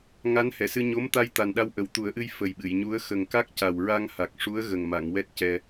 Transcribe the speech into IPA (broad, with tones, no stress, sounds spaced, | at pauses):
ŋ a˧˥ n h ɛ˨˩˨ s ɨ˧ ɲ o˧˥ m t̪ a˧ j t̪ a˨˩ n ɗ a˧˥ w ʔ ə˨˩ w t̪ u˨˩˦ ə̯ ʔ ɨ˧ j f ə˨˩ j ɓ ɨ˨˩˨ j ɲ u˧˥ ə̯ x ə˨˩ ŋ k a˦˥ k̚ c a˨˩ w ɹ a˧ ŋ h a˨˩ k̚ ʂ u˧˥ ə̯ ɣ ə˨˩ ŋ m a˨˩˨ ŋ w ɛ˦˥ t̚ c ɛ˧